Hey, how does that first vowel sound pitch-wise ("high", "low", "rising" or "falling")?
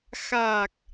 low